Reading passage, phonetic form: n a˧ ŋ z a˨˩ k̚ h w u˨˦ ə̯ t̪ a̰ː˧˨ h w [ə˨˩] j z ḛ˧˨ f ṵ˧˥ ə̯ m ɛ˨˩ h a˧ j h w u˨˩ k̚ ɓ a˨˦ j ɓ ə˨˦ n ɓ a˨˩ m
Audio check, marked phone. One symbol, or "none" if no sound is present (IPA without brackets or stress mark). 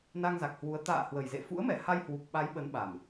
ə˨˩